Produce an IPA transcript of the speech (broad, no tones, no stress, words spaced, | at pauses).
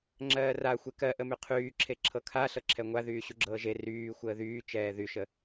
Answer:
ŋ͡ǁɜːraxʷe kɜʔəmy qʰyːǁʰe ǁʰɤkʰa ɬɤǁʰɛŋʷa ðyːɕuɡ͡ǁɤːʒe ryː xʷəːðyː t͡ʃɛːðyʃə